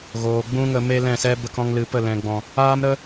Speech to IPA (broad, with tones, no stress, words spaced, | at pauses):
ɣoː˨ɡ͡bũ˦ŋə˧ me˦lɛ̃˦˨sɛ˦ bə˦kɔ̃˦ŋ lɨ˨pə˦˨lɛ̃˨ɡ͡bɔ̃˨ | aː˦mɾə˦